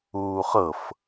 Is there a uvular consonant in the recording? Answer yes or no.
yes